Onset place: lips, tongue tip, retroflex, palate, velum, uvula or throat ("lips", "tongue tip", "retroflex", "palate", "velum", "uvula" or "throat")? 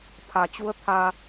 lips